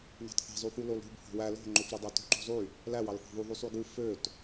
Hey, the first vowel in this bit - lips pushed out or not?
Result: no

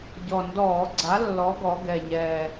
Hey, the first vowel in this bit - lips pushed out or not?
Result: yes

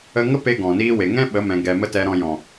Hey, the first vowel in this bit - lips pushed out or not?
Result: no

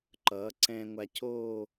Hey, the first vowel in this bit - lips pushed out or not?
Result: no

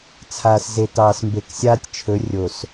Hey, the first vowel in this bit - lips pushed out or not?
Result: no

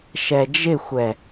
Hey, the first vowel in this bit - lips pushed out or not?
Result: no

